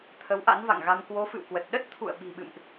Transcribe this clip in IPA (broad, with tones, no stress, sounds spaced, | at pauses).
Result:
t̪ʰ ə˨˦ w ʔ a̰˧˥ n v a̰˧˨ ŋ ɣ a˧ m k w o˨˦ f ɨ̰˧˨ w k w ə˨˩ t̚ ɗ ə˦˥ t̚ t̪ʰ ṵ˧˨ ə̯ ɓ i̤˨˩ ɓ ɨ̰˧˨ m ʔ